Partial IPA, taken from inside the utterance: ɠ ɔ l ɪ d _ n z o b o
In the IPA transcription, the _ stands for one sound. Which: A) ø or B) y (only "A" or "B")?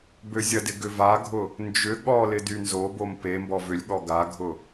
B